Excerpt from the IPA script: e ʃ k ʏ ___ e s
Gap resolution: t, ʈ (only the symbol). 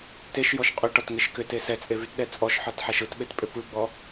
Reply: t